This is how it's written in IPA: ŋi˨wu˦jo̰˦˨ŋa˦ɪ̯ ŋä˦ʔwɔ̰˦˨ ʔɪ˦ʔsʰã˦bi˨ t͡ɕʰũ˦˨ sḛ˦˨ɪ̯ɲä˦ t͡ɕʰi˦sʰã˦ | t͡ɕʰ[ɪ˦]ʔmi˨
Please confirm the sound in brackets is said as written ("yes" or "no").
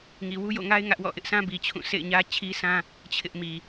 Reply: yes